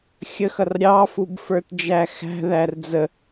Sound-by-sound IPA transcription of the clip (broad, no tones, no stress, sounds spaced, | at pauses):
xʲ ə x ʌ r ɾʲ ɑ f u b f ə˞ t d͡ʒ æ x æ̤ ð æ r d͡z ə